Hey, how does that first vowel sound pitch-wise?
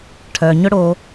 low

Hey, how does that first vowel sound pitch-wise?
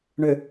low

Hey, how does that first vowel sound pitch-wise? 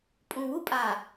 low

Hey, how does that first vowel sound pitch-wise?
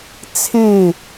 falling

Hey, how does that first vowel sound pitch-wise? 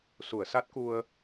low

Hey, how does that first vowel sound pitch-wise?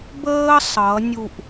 high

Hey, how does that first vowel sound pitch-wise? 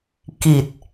low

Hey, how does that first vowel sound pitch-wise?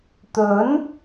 rising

